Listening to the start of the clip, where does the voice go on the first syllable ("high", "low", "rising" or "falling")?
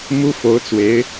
high